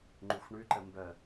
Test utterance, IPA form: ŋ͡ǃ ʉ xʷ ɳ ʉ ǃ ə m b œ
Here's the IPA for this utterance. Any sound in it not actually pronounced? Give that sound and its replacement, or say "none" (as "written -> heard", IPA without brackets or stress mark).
none